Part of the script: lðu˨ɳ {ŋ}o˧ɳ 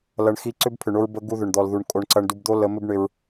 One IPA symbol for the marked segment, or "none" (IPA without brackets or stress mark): kʼ